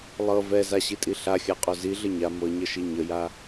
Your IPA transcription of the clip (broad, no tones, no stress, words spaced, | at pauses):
lˠɤ vɛzaɕitʼi ɬaxʲaqʼo ziɮə ɲa mɤɲəʃi ɲəja